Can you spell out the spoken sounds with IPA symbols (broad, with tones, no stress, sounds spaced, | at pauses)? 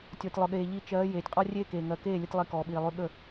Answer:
tʲ ɔ˨ tʲ lˠ ʊ˨ ɠ eː˨ ʎ i˧ t͡ʃ ɜː˨˦ j eː˨ tʲ qʼ ɔ˦ rʲ eː˦ k eː˨ ŋ ɜ˨ k eː˦˨ lʲ ə˧ tʲ lˠ i˧ k ɔː˨ ɓ iː˨ lˠ ʉ˧ ɠ ə˦˨